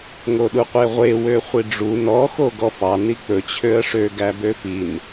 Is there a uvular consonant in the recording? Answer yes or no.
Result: yes